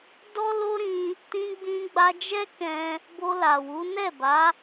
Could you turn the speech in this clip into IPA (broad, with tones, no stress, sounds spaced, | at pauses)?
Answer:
d ɔ˦ l o˦ ɾ ĩ˧ | t ĩ˧ ɡ͡b ĩ˧ ɡ͡b a˧ d͡ʒ ɛ˦ k ɛ̃˧ | b o˧ l a˨ w u˨˦ n ɛ˦˨ b a˨˦